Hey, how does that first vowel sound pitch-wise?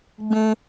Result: high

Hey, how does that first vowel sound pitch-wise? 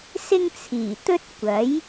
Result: high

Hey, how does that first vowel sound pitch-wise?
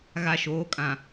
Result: low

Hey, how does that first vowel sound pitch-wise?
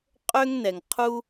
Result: high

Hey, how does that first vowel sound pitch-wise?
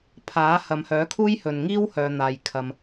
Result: rising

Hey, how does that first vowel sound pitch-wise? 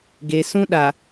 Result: low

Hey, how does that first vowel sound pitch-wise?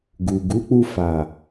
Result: low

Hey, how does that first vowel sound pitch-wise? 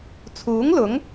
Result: rising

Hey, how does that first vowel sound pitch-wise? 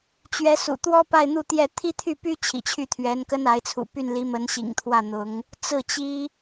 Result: rising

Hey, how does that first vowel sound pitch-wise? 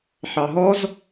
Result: low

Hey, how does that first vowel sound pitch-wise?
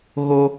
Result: high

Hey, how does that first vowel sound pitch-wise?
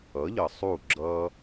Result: rising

